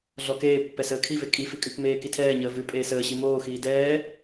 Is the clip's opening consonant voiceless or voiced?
voiced